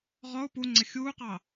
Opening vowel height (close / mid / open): mid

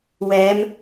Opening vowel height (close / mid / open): mid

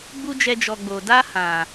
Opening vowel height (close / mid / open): close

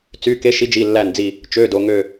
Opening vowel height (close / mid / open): close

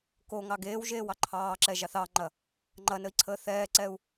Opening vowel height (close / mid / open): mid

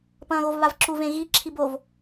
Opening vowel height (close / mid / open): open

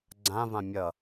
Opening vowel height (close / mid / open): open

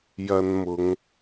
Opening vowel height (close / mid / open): open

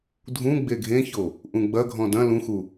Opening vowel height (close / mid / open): close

